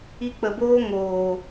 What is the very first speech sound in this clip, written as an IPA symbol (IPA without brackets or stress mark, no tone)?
i